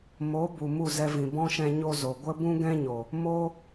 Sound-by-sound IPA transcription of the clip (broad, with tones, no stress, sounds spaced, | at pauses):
m o˨˦ b u˨ m u˦˨ z ɛ˧ v ĩ˨ b ɔ̃˦ ʃ ɛ̃˧ ɲ o˦ z o˨ ɡʷ ə˦ b ũ˦ ɡ ɛ̃˦ ɲ o˨ | m o˦